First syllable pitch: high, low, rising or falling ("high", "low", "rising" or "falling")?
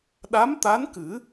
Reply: rising